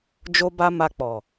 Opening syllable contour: high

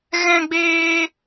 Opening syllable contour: high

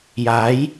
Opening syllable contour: rising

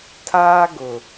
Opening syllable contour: high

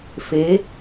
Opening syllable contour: rising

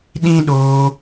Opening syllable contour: high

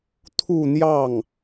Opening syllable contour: falling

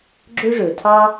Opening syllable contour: high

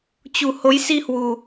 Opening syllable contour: low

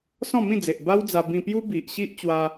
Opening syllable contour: falling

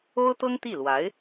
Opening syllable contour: high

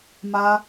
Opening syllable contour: high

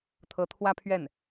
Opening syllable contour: rising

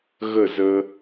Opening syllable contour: falling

